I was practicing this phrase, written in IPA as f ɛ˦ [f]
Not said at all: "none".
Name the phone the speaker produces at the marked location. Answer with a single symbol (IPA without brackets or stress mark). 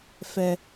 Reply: none